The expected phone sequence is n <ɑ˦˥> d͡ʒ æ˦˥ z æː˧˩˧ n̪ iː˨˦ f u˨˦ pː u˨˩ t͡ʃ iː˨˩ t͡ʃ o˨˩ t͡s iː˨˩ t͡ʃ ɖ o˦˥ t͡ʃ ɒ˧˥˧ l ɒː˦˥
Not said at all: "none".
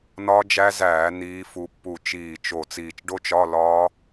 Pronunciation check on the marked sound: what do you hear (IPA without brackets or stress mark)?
ɒ˦˥